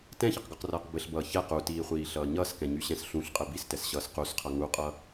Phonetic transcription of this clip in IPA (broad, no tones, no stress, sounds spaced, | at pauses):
t ɛ̃ ç ʌ q ɡ ɒ q r ʌː q b ɘ ɬ b ʌː ç ɛ q u t iː χʷ iː ɬ ʌː ɲ ʌː s k ɛ̃ ɲ y ɕ ɛ̃ s ɬ ũ ɬ qʼ ɘ b i s t ɛ s ɕ ʌː s q u s qʰ ʌ ŋ u qʼ ʌ